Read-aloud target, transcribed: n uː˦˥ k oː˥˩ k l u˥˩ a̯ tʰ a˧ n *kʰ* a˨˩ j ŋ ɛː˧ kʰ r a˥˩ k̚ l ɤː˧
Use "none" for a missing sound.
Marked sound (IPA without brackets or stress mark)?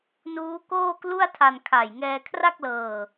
kʰ